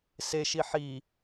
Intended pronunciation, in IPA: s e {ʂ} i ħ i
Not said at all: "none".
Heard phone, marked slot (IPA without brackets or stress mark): ʃ